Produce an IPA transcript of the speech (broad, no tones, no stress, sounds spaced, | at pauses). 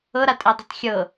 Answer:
ɤ ɾ a tʼ ɛ dˤ i tˤ xʲ ɤ